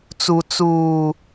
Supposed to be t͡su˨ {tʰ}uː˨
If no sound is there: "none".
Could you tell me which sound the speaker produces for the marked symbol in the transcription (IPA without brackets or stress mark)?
t͡s